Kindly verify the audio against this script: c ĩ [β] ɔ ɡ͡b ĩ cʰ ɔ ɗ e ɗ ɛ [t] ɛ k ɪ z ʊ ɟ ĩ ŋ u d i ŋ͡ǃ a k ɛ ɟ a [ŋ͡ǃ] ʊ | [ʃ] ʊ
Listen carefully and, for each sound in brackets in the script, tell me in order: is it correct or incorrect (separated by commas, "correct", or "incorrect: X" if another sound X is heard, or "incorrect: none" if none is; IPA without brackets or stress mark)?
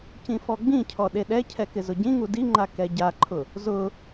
incorrect: f, incorrect: cʰ, incorrect: ǃʰ, incorrect: z